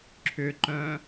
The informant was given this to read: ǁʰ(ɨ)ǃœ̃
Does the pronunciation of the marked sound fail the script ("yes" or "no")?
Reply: yes